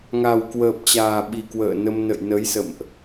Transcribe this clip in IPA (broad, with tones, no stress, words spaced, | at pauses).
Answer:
ŋa˨˩wkwəː˨˩p̚t͡ɕaː˨˩ɓi˨˩ kwə̰ː˧˨nə˧m nə̰˧˨jnə˨˦jsə̰˧˨mʔ